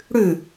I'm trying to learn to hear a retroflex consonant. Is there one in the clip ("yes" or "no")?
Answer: yes